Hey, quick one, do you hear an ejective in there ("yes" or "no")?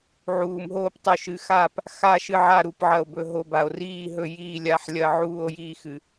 no